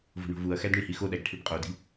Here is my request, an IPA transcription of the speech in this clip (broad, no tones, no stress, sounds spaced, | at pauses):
v o̤ ɳ o̤ v u ɐ̯ x æ d ɳ i h i x o ɗ æ ɡ ʈʰ i b qʼ o d i̤